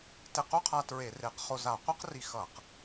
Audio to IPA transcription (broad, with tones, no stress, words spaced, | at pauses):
te˧qu˥qʰa˧ tɹe˧˩˧re˧˩˧qχo˧za˧˩˧ qʷɛ˥qri˧xʌ˧˩˧q